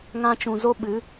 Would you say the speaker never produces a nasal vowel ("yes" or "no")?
no